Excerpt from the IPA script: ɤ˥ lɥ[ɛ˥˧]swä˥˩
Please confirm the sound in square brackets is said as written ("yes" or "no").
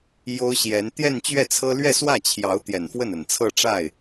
yes